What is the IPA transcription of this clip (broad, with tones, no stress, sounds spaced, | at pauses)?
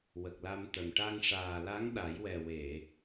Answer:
w ə˨˩ k̚ l a˧ m t̪ ə˨˩ m ʈ a˧ ŋ ʂ aː˨˩ l a˧˥ ŋ ɗ a˨˩˦ j w ɛ˨˩ w e˨˩˨